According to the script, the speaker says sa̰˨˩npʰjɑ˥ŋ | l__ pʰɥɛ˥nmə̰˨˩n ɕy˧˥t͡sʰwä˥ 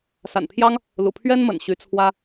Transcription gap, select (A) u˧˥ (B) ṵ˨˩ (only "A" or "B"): B